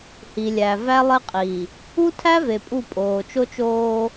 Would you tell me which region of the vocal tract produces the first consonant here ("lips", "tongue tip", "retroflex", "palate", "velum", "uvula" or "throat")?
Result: throat